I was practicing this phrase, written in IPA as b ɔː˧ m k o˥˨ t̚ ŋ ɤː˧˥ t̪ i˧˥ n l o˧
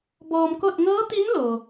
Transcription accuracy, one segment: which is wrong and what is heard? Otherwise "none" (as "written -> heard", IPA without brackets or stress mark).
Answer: none